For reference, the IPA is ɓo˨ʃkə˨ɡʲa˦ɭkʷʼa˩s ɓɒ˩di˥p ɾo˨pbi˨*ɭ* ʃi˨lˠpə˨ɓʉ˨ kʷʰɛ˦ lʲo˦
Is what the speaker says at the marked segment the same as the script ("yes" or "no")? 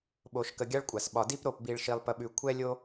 yes